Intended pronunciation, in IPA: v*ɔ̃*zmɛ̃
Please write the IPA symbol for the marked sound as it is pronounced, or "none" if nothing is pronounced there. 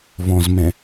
ɔ̃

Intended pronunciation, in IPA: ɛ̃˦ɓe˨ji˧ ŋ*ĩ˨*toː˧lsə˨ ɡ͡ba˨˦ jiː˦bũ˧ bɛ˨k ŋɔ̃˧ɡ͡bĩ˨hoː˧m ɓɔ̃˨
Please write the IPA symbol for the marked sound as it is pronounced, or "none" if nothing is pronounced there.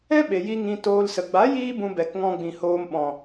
ĩ˧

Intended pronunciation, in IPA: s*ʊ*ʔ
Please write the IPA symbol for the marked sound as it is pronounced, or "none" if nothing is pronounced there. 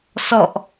ɔ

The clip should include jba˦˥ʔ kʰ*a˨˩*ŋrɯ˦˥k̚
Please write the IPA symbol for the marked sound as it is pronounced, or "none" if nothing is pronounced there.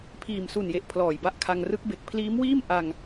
a˧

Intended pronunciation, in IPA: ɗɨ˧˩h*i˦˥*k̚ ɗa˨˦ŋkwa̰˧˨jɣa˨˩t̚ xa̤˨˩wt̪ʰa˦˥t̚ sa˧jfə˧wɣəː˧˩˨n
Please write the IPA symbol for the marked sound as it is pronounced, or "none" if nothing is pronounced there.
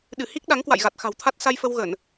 i˦˥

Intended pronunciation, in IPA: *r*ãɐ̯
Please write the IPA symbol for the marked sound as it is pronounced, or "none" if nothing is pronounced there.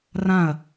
r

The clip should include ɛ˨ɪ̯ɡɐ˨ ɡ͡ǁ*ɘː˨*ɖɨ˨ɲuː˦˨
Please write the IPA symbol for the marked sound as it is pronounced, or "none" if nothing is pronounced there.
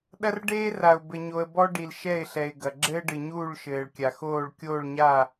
ɘː˦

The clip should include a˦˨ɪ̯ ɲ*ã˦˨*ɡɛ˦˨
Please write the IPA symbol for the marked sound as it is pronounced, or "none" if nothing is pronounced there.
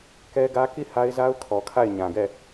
ã˨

